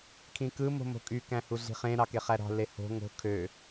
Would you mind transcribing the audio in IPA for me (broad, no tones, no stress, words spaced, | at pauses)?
kʰĩkɯ mo̤mo̤kʼy kæ̃huɮi̤χẽ ɾɑkeχæɾɑ̤ leho̤ ŋo̤ kʰø